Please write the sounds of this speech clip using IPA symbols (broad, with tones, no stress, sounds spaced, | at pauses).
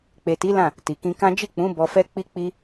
k͡p e˨ t i˨˦ l ã˦˨ | t i˨ k ĩ˧ k ã˦ d͡ʒ i˦˨ k͡p ũ˨˦ b ɔ˧ f ɛ˦ k͡p i˦ k͡p i˦